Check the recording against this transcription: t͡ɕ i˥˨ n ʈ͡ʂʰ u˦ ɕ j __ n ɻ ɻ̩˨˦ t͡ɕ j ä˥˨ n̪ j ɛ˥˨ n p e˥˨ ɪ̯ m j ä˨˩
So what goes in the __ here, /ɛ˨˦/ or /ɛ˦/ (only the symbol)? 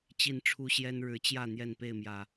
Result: ɛ˦